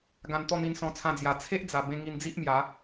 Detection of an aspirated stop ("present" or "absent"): present